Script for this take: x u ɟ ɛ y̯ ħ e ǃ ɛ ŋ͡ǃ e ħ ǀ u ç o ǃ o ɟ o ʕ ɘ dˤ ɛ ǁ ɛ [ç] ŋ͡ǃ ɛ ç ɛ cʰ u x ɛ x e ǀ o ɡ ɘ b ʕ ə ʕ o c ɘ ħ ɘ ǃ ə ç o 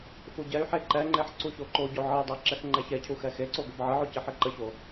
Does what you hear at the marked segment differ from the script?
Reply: yes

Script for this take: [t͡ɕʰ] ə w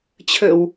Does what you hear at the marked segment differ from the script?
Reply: no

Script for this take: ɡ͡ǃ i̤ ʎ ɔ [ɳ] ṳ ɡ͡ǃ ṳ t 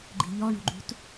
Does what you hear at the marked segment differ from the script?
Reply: no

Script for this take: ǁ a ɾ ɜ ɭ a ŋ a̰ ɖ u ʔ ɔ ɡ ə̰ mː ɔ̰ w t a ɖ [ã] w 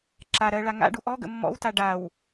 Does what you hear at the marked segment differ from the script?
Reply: yes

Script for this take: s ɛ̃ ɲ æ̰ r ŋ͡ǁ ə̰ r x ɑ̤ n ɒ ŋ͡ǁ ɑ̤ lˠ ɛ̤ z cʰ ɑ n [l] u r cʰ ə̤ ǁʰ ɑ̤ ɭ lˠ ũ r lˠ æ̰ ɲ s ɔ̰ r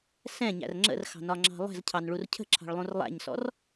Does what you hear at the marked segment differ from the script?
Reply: yes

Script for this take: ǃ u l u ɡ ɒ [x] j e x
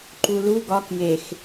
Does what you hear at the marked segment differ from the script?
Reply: yes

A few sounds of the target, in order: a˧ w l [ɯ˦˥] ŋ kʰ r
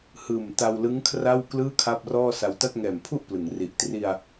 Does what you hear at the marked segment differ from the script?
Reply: no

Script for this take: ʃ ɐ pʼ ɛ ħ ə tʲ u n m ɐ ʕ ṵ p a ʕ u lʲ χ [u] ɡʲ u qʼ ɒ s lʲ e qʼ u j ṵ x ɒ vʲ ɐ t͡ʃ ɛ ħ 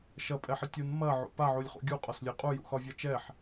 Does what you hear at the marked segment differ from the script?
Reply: yes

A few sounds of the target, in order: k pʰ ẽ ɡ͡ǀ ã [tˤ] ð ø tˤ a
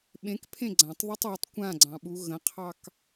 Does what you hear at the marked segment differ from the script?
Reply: no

